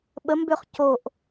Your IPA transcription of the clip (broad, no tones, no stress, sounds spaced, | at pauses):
ɓ ə m b ø χ c o ʔ